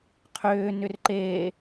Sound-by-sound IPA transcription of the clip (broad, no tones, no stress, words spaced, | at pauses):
qʰʏːnʏr ǃeː